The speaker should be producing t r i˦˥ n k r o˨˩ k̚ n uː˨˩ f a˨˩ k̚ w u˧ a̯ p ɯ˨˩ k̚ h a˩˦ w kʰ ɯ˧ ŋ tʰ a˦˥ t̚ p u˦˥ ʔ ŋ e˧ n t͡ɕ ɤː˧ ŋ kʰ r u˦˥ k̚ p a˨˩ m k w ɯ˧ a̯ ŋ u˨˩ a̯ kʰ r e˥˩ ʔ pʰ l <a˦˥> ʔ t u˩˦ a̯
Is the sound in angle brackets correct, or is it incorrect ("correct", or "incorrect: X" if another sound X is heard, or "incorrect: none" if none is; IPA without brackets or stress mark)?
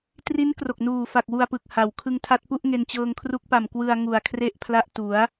correct